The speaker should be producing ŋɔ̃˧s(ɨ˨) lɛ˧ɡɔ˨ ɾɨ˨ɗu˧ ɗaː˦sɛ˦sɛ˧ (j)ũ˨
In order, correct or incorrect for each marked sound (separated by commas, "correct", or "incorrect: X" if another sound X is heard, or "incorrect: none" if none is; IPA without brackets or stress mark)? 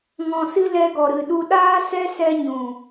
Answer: incorrect: ɨ˦, incorrect: ɲ